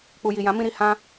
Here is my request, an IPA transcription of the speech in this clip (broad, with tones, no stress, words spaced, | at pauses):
k͡pu˨ji˨jã˨˦ mĩ˧ɾi˨hã˧